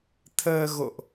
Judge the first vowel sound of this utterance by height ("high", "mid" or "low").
mid